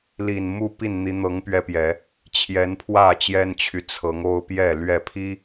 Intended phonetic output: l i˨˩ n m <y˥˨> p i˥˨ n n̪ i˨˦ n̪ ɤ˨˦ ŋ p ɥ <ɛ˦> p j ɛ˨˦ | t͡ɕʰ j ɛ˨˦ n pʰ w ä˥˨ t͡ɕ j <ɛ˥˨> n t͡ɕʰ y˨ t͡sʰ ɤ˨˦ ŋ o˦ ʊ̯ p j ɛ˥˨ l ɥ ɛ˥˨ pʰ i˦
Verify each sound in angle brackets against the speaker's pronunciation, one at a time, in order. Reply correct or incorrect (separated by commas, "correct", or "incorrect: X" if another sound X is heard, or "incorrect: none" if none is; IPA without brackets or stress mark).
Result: incorrect: u˥˨, correct, incorrect: ɛ˦